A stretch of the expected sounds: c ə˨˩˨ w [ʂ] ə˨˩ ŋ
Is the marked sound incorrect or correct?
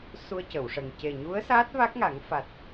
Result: correct